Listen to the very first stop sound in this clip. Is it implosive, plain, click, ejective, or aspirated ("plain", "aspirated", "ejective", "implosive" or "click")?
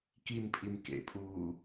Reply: plain